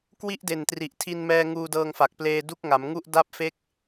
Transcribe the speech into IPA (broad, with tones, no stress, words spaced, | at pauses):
kwi˥˩ʔde˨˩ntri˨˩ʔ tʰi˧nmɛː˧ ŋuː˧dɤː˧ŋfa˨˩k̚pleː˧ du˦˥k̚ŋa˩˦mŋu˥˩ʔ da˥˩p̚fe˥˩k̚